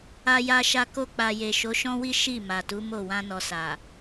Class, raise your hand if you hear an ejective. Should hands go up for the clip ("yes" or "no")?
no